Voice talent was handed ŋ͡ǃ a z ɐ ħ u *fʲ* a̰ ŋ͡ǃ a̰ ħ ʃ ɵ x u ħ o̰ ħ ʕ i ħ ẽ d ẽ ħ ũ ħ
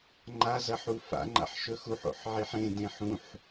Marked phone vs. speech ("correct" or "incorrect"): incorrect